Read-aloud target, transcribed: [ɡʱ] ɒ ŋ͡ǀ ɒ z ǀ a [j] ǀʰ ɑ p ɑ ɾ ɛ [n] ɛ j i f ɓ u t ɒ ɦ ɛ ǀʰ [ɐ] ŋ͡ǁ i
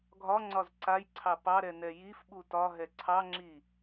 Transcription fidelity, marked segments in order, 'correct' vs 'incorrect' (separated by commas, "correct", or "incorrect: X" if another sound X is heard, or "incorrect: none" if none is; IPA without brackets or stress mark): correct, correct, correct, incorrect: ɑ